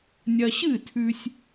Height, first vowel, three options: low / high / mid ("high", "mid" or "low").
low